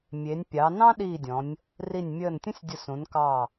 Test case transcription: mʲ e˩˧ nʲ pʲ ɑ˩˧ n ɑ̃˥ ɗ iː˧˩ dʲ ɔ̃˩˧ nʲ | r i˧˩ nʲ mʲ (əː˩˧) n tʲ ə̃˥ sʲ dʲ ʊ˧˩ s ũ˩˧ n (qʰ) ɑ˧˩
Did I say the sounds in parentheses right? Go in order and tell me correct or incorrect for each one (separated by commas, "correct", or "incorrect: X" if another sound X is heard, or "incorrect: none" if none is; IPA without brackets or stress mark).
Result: incorrect: əː˧˩, incorrect: k